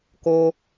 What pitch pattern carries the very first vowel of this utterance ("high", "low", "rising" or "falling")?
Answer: high